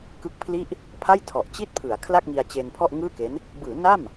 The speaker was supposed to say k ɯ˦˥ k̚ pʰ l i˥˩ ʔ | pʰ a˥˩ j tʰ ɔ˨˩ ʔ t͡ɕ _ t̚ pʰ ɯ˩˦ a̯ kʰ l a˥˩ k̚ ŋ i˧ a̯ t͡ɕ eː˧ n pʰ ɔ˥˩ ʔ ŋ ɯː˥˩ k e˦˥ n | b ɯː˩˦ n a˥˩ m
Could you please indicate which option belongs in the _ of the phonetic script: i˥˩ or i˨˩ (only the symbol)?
i˥˩